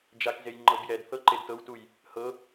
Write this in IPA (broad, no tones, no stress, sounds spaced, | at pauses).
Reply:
d͡ʒ a k z e j ŋ͡ǃ ɤ b j ɛ d θ ɤ ǃ e d t ɤ w t u j | h ɤ